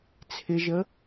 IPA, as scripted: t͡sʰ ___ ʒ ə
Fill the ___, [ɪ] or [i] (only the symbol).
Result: ɪ